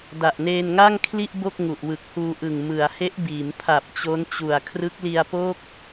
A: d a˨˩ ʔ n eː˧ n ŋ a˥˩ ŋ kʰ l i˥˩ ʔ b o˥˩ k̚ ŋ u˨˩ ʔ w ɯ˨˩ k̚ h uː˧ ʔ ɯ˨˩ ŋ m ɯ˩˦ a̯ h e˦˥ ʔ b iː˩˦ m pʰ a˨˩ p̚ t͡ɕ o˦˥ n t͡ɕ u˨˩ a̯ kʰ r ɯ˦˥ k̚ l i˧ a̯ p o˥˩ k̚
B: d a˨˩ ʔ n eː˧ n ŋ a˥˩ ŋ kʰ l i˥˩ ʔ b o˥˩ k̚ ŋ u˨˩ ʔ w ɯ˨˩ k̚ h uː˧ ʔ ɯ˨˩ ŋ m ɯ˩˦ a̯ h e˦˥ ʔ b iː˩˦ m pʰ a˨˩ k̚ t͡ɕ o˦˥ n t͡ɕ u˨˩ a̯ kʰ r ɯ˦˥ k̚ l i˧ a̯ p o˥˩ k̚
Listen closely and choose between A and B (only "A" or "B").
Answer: A